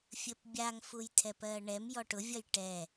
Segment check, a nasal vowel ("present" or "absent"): absent